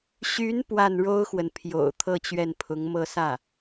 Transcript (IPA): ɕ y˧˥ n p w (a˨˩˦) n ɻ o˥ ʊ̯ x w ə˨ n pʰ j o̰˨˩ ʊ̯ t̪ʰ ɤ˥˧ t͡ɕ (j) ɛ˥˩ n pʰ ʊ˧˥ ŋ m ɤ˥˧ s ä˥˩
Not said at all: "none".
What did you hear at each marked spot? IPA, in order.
a˥˩, ɥ

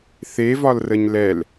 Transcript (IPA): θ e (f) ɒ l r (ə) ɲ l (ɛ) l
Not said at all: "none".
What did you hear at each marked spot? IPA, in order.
v, ə, ɛ

